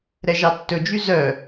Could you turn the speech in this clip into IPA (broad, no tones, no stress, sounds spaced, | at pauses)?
ɾ ɛ ʒ ɑ tː ɵ d͡ʒ y z œ